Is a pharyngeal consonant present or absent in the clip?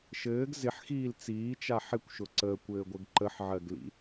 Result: present